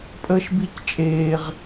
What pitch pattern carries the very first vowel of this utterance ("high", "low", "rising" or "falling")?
high